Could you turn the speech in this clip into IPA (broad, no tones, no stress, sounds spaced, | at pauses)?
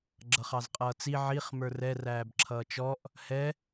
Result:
ɡ͡ǁ ʌ χ ɑ z qʼ ʌː t͡s i ʕ i χ m ə˞ r ɛ r æː b ǁʰ ʌː t͡ʃ ɔ ʔ | h ɛ